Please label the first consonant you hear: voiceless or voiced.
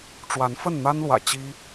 voiceless